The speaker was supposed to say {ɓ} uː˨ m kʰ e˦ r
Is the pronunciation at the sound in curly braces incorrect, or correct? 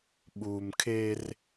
correct